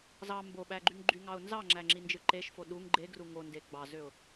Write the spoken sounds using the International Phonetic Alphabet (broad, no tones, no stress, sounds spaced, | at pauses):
z ɑ m b o ɓ æ ɡ͡ǃ y ŋ ɡ͡ǃ y ŋ ɑ ʊ̯ n z ɑ ŋ͡ǁ æ ŋ͡ǁ i n d͡ʒ ɯ ǃ e ʃ f o ɗ u ŋ ɡ͡ǃ e ɡ r u ŋ o n d e ɡ͡b ɑ z ø ʊ̯